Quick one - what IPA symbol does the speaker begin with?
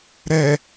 ɾ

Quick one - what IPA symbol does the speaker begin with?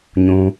ɲ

